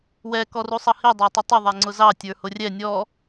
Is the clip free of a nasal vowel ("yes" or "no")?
yes